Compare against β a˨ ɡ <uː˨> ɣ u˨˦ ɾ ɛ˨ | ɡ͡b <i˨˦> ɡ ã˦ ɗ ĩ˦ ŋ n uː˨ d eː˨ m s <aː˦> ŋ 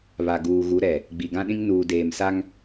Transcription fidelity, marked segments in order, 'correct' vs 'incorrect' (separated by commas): correct, incorrect, incorrect